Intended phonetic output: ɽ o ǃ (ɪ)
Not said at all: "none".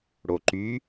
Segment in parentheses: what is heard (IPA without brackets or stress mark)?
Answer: y